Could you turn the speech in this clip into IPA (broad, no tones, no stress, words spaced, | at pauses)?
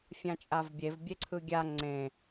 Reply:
fʲãt͡ʃʼavbʲev bʲeǀʰɯɡʲa ŋ͡ǀẽ